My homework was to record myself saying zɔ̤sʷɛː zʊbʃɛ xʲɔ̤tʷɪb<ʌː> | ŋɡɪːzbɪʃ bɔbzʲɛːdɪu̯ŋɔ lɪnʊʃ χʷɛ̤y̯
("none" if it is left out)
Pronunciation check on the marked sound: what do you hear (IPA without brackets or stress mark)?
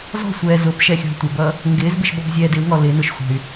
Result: ʌː